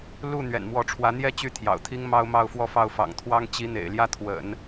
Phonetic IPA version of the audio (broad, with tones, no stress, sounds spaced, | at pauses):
l u˥˩ n̪ ɥ ɛ̰˨˩ n m w ɔ˧˥ ʈ͡ʂʰ w ä˧˥ n̪ j ɛ˥ t͡ɕ y˥ t̪ʰ j ɑ̰˨˩ ʊ̯ t̪ʰ i˥ ŋ m ɑ˥ ʊ̯ m ɑ˥˧ ʊ̯ f w ɔ˥˧ f ɑ˥˩ ʊ̯ f ɑ̰˨˩ ŋ t̪ʰ w ɑ˥ ŋ t͡ɕ i˧˥ n̪ ḛ˨˩ ɪ̯ l j ä˥˩ t̪ʰ w ə̰˨˩˦ n